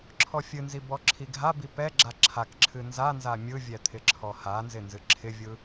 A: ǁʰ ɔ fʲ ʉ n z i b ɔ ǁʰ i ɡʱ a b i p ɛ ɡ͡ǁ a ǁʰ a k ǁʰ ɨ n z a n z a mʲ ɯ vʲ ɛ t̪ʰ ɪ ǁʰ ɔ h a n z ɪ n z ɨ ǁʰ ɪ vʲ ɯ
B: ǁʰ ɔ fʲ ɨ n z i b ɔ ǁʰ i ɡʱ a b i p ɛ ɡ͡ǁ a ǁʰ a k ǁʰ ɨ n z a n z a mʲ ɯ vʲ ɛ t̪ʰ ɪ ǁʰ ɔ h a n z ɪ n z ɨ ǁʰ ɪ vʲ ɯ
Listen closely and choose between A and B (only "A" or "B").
B